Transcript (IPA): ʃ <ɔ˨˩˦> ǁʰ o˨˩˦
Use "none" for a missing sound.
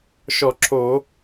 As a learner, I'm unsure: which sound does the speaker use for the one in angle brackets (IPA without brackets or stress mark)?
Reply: ɔ˨˩˦